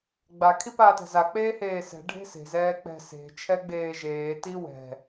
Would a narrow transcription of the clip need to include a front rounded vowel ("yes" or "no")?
no